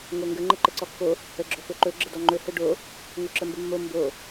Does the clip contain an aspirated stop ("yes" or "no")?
no